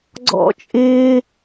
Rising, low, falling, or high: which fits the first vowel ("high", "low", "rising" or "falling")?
high